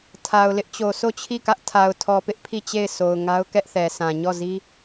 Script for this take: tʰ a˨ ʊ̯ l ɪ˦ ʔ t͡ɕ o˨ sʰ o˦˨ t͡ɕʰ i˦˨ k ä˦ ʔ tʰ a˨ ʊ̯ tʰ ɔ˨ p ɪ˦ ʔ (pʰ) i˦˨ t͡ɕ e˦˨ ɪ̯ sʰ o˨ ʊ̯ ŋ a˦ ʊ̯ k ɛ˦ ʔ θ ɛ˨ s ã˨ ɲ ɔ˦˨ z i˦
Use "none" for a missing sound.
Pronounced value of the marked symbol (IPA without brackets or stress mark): pʰ